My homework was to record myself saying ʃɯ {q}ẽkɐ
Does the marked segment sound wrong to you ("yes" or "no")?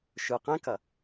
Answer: no